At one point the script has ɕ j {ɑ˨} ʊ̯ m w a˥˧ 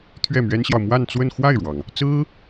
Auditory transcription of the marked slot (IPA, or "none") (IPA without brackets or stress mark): ɑ˨